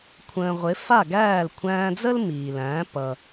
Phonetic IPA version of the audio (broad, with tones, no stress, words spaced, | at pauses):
kʷʰə̃ː˩ ʁʷɪ˩˥ fa˥˩ɡæː˥˩l kʷʰæ̃ː˧d͡zə˥l miː˩læ̃ː˩˥ pʌ˩